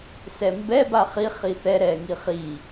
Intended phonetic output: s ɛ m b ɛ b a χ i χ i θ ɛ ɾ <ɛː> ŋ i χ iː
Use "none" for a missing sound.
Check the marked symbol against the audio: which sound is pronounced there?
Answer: ɛː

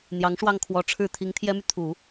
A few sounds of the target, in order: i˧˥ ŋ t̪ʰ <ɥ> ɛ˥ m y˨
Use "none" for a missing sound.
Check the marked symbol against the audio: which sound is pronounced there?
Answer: j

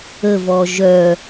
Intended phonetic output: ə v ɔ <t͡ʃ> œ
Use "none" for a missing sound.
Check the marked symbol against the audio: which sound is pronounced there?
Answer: ʒ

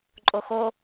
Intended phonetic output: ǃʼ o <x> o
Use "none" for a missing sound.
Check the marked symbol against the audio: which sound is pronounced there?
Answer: x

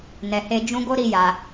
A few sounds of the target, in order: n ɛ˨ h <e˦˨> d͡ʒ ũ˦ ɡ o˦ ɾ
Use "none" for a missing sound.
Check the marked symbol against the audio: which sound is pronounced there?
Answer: e˧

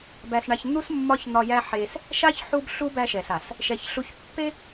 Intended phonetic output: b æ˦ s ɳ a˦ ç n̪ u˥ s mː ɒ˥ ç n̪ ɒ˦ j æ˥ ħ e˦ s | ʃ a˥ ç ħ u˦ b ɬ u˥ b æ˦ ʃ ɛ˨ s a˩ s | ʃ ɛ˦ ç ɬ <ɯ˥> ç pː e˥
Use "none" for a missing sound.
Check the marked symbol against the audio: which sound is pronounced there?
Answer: u˥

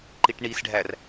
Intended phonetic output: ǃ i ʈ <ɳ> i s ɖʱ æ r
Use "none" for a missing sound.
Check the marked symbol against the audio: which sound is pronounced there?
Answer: ɳ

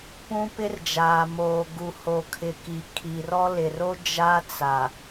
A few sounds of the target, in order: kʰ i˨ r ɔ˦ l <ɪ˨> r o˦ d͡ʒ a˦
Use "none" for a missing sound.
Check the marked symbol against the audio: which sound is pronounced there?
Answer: ɪ˨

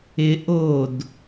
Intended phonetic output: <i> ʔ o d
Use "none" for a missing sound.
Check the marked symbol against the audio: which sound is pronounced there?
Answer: ɪ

